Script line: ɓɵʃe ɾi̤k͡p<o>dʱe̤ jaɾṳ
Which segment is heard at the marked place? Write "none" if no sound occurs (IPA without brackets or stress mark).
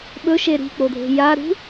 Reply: o